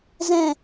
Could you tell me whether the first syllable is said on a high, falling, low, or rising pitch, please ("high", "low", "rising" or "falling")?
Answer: falling